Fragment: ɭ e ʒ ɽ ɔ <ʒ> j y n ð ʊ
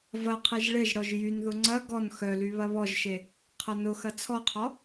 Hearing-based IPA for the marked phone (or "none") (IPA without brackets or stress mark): ʒ